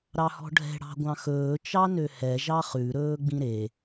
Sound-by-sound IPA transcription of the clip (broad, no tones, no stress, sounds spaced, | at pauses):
ɾ ɑ h ɔ̤ ɖʱ ɛ̤ ɽ ɑ̤ ɡʷ ɑ̃ x ɵː t͡ʃ ɑ n ø h ɛ ʒ ɑ χ ʉ ɾ ɵː ɡ͡b ĩ ɾ e